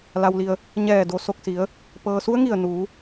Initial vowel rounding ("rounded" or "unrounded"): unrounded